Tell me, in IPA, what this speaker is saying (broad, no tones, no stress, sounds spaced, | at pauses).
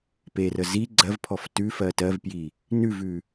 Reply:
p e r ə z i ɡ͡ǀ ɜ v pʰ ɔ f t ʉ f ɜ t ɜ v p j i | n ʉ v ʉ